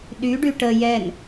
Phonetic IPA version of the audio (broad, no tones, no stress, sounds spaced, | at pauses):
ɗ y ɖ y ʈ ə j ɛ n